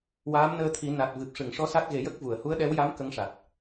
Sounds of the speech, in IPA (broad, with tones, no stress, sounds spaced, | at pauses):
w aː˧˥ m n əː˧ t̪ʰ i˨˩˦ n a˨˩ t̚ v ɨ˨˩ p̚ ʂ ɨ˨˩˨ ŋ ʂ ɔ˧˥ s a˦˥ t̚ ɣ e˨˩˦ j ə˦˥ k̚ v u˨˩˨ ə̯ h u˧˥ ə̯ ɗ ɛ˧˥ w j a˧˥ m k ə˧˥ ŋ ʂ a˨˩ t̚